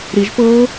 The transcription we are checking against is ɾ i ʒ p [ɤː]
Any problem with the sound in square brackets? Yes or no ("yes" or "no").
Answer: no